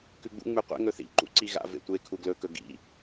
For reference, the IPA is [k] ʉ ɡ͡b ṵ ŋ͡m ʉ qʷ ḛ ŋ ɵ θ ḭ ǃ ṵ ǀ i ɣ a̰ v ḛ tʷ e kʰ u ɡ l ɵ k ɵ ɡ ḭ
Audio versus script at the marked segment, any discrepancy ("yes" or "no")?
no